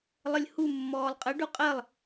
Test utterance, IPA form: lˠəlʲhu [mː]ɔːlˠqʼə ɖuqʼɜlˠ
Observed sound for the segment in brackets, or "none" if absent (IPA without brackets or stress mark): mː